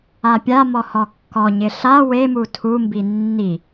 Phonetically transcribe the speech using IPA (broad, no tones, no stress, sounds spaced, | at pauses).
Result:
a pʲ a m ɔ h ɔ kː ɔ ɲ ɪ ɬ a w e m u tʰ u m b i nː i